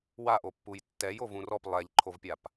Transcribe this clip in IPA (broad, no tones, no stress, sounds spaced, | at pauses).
w a ʔ o pː u j tː ɛ j o v ũ r ɔ p lˠ ɛ ʎ ǃʰ o v pʲ a p